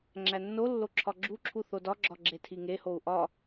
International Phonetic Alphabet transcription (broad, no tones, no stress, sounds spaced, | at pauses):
ŋ͡ǁ æ nː o lː o ǁʰ ɒ ɡ͡ǁ u ǁʰ u θ o d ɒ ɡ͡ǁ ɒ ɡ͡ǁ e tʰ i ŋ e h o u̯ ʔ ɒ